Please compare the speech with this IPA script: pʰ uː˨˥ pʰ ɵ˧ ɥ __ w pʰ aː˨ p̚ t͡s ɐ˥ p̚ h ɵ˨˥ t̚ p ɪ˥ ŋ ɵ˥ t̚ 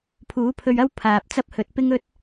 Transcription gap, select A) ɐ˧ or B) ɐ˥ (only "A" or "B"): B